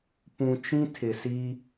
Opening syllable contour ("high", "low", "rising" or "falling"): low